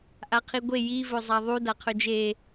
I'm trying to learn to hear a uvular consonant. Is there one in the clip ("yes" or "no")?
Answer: yes